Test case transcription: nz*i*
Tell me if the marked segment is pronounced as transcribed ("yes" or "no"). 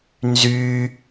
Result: no